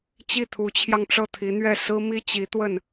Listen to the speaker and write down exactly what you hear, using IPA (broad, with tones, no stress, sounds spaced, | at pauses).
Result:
t͡ɕ i˥˩ t̪ʰ u˧˥ t͡ɕʰ j ɑ˧ ŋ ʈ͡ʂ ɤ˥˩ t̪ʰ i˧˥ n̪ ɥ ɛ˥˩ s ɹ̩˥ m i˥ t͡ɕ i˧˥ t̪ w ə˥˩ n